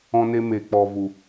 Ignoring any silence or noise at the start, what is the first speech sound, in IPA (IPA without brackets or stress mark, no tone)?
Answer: ɔ̃